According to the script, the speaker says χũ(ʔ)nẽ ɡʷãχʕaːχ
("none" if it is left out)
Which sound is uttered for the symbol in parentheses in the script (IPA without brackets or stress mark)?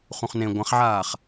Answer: χ